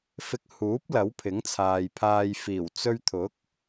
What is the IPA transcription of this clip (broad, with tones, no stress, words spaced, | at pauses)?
fɪ˧k̚huː˨˥p̚ lɐ˨˥wpʰɪ˨˥ŋt͡sʰaː˨j pʰaː˨jfiː˨˩w t͡sɵ˧ɥt̪ʰʊ˨˥k̚